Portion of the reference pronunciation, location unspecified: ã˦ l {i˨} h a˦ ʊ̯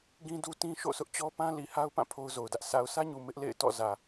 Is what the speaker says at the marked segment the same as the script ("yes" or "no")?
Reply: yes